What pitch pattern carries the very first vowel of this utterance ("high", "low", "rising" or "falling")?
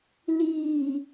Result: low